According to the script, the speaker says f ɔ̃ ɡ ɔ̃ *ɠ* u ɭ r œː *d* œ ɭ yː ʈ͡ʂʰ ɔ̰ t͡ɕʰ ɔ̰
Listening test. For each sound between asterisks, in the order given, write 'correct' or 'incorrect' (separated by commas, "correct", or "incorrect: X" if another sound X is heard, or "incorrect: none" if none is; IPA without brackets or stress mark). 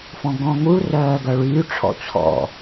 incorrect: ŋ, incorrect: ɡ